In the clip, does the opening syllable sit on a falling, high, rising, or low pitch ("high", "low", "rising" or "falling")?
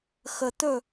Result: low